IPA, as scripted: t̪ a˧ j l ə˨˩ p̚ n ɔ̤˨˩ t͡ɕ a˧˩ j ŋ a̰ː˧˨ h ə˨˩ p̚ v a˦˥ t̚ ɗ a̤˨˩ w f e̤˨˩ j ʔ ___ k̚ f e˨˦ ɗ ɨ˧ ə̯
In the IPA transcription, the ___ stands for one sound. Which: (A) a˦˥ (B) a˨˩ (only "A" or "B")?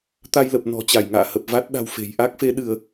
A